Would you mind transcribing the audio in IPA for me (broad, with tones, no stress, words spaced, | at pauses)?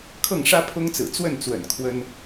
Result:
kʰɤ˥˨ŋʂä˦pʰʊ˦ŋt͡sɹ̩˨˩ t͡swə˥˨nt͡swə̰˨˩n kʰwə˦n